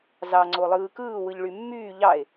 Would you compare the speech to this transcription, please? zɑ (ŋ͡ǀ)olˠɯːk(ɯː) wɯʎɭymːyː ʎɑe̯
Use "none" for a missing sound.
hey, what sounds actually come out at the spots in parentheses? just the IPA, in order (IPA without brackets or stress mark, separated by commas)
ŋ͡ǀ, ɯː